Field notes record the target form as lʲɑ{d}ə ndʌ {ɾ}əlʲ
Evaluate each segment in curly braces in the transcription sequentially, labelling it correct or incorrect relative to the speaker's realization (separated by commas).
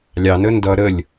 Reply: incorrect, correct